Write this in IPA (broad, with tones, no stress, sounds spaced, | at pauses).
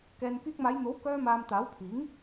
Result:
k ɛː˨ n k yː˧ k̚ m aː˨˧ j n̪ o˨˥ w k œː˧ m aː˨ m t̪ aː˨˥ w pʰ iː˨˥ ŋ